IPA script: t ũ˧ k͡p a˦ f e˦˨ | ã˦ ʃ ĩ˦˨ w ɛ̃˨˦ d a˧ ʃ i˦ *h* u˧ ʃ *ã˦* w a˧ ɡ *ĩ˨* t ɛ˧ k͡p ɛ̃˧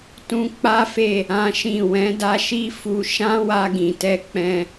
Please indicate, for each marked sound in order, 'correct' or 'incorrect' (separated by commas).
incorrect, correct, correct